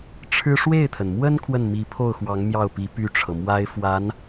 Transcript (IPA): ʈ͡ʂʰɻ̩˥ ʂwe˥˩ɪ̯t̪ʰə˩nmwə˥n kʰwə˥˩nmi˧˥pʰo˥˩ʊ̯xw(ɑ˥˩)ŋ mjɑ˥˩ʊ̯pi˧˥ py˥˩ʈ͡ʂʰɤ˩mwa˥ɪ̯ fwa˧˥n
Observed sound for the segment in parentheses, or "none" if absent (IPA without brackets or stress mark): ɑ˧˥